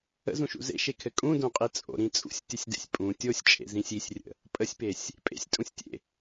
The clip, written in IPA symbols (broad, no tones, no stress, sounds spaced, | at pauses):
ə̰ z ũ ʃ ṵ z ḛ ʃ e kʰ ɘ kʼ ũ d õ qʼ i t͡sʼ o̰ ɾ ĩ t͡sʼ ṵ sʲ tʲ ɘ sʲ d ḛ sʲ pʼ ũ tʲ o sʲ t͡ʃʼ ḛ z ĩ sʲ i sʲ rʲ ə̰ | pʼ ə sʲ p e sʲ | pʼ ḛ sʲ tʼ ũ sʲ tʲ ḛ